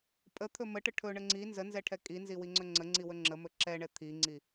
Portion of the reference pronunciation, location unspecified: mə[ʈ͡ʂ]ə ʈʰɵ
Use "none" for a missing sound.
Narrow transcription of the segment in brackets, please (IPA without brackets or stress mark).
ʈ